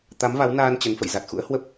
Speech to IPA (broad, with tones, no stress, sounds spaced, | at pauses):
t̪ a˨˦ m v a˨˦ w n aː˧ n t͡ɕ ə˨˦ n f ə̰˧˨ j z a˨˩ t̚ x ṵ˧˥ ə̯ h w ə˦˥ p̚